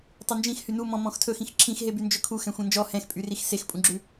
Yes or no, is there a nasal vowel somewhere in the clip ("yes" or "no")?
yes